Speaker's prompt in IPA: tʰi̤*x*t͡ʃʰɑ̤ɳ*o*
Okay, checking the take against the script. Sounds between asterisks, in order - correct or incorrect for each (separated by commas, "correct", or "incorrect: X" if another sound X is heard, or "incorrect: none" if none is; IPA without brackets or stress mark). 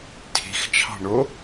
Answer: correct, correct